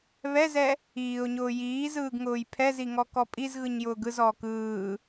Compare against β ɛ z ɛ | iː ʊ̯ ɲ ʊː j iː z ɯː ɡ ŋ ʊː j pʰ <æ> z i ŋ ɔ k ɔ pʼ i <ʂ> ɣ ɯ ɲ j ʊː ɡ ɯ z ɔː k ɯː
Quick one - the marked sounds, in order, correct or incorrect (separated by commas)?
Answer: incorrect, incorrect